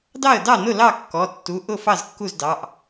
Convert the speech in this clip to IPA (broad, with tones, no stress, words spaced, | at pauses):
dɑ˥˩ə̯dɑ˥˩nʊ˥˩ lɑ˥˩kːɔ˩˧˩tːu˩˧˩ ʔʊ˥˩ fɑ˥˩zkːu˥˩zdɑ˩˧˩ʔ